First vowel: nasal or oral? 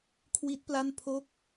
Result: oral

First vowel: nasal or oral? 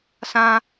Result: nasal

